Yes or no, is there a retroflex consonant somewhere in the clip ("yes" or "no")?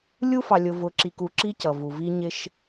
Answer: no